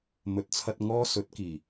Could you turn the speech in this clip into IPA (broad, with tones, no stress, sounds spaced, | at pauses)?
m ɵ˨˥ t̚ t͡sʰ ɐ˧ t̚ ŋ ɔː˧ s ɵ˨˥ t̚ k iː˨˩